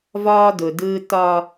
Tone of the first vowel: high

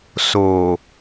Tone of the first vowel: low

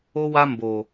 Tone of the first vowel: high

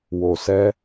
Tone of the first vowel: low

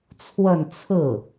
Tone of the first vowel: falling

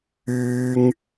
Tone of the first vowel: high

